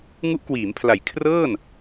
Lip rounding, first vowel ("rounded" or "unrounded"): rounded